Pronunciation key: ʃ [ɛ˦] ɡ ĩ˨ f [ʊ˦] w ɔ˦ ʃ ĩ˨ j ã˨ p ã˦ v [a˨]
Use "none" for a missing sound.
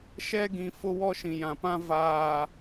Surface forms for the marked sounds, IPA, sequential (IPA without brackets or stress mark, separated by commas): ɛ˦, ʊ˦, aː˨